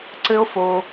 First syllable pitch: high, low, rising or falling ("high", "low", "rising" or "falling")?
high